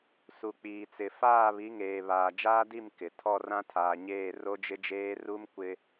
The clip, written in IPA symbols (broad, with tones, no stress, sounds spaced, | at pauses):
s u˨ k͡p iː˨ t͡s ɪ˨ f aː˦˨ β i˨˦ ŋ eː˨ β aː˨ d͡ʒ aː˦ d i˦˨ m k ɪ˨ tʰ ɔ˦˨ r ã˦ tʰ aː˨ ɲ eː˦˨ r o˦ d͡ʒ ɪ˦ d͡ʒ eː˦ r u˦ m kʷ ɪ˦